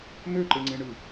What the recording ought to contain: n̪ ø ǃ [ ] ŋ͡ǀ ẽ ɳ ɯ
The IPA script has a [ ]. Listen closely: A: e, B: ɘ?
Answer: A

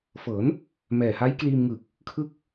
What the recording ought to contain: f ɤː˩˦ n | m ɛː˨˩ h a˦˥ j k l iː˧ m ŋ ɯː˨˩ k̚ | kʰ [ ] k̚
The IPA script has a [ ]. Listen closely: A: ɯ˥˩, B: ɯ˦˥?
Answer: B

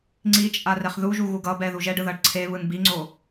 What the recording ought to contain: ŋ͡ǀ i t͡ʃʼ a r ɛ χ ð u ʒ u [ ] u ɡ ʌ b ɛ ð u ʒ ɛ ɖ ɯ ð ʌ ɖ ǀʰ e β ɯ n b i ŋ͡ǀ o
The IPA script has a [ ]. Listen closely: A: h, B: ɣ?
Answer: B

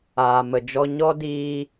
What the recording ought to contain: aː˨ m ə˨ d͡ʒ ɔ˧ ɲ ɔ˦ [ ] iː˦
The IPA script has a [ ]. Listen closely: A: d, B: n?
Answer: A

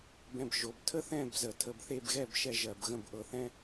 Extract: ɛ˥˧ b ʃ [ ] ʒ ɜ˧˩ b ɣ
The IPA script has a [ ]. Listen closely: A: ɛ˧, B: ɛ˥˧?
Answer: B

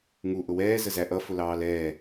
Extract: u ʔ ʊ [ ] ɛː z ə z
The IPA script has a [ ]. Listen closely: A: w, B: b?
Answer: A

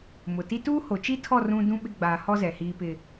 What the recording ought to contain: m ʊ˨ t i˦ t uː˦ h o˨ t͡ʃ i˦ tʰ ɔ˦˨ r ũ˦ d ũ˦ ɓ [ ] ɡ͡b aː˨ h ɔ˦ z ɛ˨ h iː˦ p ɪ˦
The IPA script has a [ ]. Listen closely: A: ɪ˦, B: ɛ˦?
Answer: A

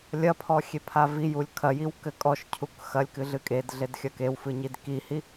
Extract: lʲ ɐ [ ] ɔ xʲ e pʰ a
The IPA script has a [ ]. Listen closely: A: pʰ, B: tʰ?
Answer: A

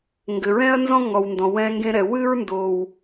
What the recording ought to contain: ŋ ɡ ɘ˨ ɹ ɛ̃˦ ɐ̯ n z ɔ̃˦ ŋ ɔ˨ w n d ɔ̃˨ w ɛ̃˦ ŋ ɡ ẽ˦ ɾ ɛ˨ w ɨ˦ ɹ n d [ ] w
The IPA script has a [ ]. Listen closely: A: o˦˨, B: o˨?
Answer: B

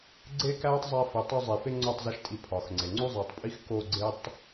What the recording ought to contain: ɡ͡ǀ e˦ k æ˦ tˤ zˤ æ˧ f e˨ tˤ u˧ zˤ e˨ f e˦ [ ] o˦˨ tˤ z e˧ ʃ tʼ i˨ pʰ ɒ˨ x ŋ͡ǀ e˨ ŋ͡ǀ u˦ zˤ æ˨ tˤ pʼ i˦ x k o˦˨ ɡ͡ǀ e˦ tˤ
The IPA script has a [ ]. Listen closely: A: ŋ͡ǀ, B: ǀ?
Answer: A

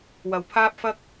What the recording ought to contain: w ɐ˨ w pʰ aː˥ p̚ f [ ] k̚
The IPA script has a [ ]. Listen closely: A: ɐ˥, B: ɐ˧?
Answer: A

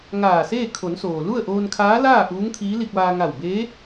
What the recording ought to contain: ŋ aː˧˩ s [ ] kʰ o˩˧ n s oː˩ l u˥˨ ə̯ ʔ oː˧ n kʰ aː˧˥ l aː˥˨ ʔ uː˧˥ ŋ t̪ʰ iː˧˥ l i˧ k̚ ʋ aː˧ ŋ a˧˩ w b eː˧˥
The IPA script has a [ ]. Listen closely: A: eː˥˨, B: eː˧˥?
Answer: A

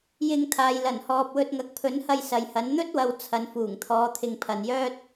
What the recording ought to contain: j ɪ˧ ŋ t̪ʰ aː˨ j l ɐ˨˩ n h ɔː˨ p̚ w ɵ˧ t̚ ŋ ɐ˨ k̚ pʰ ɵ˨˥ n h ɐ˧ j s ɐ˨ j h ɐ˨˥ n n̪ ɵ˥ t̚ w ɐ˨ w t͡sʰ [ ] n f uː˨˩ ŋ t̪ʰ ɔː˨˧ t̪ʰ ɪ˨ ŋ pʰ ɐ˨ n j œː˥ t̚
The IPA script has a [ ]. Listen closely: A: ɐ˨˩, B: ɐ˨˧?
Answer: B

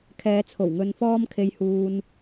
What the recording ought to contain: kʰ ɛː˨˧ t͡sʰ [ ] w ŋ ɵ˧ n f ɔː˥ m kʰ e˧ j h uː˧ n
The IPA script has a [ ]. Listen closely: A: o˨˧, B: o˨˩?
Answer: B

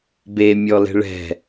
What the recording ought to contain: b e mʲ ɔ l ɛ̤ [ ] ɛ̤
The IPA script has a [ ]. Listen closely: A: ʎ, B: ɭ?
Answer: B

